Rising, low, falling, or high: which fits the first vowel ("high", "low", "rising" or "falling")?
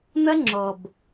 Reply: high